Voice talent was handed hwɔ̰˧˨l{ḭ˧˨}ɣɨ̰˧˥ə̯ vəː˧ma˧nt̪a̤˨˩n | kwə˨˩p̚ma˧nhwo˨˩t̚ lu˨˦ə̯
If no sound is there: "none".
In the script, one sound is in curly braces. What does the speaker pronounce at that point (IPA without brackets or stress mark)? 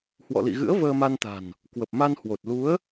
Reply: ḭ˧˨